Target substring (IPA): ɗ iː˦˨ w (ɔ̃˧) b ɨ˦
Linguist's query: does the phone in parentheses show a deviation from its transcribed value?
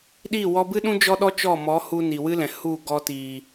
yes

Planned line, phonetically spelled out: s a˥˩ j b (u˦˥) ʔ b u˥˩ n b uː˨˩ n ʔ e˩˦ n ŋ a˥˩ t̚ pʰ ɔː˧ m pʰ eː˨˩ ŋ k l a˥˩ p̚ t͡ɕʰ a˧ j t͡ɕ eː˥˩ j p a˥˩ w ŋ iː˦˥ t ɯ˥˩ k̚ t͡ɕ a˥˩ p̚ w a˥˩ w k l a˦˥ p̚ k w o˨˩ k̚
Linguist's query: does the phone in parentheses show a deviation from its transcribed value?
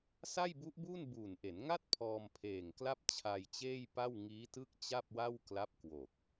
no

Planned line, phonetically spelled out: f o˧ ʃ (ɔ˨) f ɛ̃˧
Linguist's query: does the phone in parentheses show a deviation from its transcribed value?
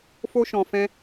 yes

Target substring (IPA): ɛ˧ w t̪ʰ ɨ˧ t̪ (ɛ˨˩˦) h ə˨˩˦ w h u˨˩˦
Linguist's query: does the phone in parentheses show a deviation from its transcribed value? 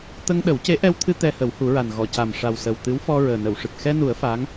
yes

